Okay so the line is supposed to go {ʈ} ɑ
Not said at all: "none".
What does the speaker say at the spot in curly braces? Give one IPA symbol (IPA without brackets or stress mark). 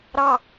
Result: ɾ